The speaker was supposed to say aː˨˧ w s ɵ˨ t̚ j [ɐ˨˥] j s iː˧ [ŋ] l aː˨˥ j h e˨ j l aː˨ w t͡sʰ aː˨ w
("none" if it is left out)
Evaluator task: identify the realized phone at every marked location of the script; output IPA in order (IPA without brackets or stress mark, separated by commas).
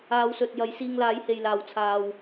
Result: ɐ˨˥, ŋ